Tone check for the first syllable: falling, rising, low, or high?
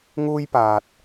high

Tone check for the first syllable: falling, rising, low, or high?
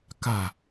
falling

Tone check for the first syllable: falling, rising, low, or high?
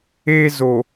high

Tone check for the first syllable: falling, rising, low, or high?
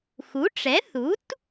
rising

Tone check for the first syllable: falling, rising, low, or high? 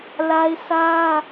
high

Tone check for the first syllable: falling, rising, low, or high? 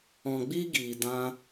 low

